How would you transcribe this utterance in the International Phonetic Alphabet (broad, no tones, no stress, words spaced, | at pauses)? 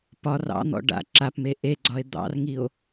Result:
pɒr ɑ̰n̪ɔ̰ ɖa̰ ǁapme ʔeɡ͡ǀɒe̯ d̪ɑ̰rŋio̯